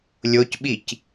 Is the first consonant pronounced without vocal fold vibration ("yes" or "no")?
no